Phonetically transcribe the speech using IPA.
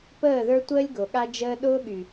p əː˦˨ ð ə˞˦ tʷ əː˦ lʲ ɡ o˨ ɠ a˦ d͡ʒ əː˦ ɗ ʊː˦ ɠ y˨

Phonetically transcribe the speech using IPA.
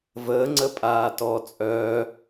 v əː ŋ͡ǀ ə pʼ aː t ɔ t͡sʼ œ

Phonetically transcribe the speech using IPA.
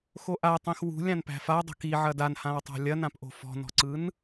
x o ʔ a tˤ ĩ x w ṳ lʲ ã n p æ̤ f a dˤ o̤ k i ʕ ɐ d a n h ã w tˤ a̤ lʲ ɐ n ã p ʔ o̤ f ɔ̤ n ɔ̤ ǀ ɯ n

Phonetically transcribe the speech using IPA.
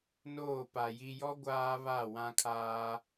n oː˦˨ p a˨ j i˨ j ɔ˦ ɡʷ aː˦ β a˦˨ w ã˦ kʰ aː˦

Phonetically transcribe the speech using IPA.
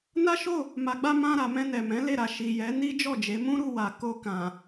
n a˦ ʃ o˦˨ | m a˨ ɡ͡b a˧ m ã˧ ɾ a˨ m ɛ̃˧ n ɛ˨ m ɛ̃˨˦ l e˦˨ ɾ a˨ ʃ i˨ j ɛ˨˦ n i˦ d͡ʒ ɔ˦˨ d͡ʒ e˨˦ m ũ˦ ɾ u˦˨ w a˨ k o˧ k ã˨

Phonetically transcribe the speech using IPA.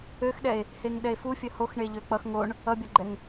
ø x ɗ ɛ e̯ | h e ŋ ɗ ɛ e̯ f u fʲ ə h o x ɳ e ʎ ø k͡p ʌ x ŋ o ɳ | ʌ bʲ ʌ ɡ͡ǃ ɛ ŋ

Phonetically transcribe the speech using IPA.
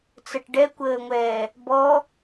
t͡s ə ʈ ɖ ɛ kʷ əː ŋʷ ɛː | b ɔ

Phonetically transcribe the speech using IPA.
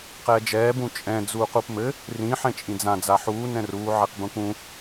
q ɛː d͡ʒ ɛː b ũ t͡ʃʼ ɛ̃ d͡z uː q u p m ɘ | r ĩ ħ ɛ̃ t͡ʃʼ ĩ d͡z ã d͡z a ħ uː n ɛ̃ r uː ʕ e q b ũ k ũ

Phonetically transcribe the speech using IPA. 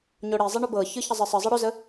ɲ o ɽ i zˤ i ɳ ɵ b ɤ ç ɯ ç ə zˤ ɨ sˤ ɨ zˤ ɤ ɽ ɵ z ə

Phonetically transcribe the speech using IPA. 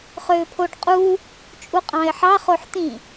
χ øː pʰ o ɖ qʼ uː | t͡ʃʼ u qʼ ɑ̃ ɪ̯ ħ ɑ χ o ħ t̪ ĩ

